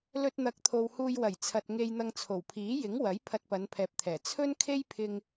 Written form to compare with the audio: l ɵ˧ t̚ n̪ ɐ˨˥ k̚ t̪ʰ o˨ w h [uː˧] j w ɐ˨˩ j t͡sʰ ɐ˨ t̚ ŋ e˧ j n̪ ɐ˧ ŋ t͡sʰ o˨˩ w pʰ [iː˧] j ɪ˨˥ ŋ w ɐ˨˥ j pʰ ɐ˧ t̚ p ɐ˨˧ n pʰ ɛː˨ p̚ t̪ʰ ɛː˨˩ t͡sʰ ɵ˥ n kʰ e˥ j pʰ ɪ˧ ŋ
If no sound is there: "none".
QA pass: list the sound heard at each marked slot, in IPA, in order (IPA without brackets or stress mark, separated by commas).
uː˧, iː˨˥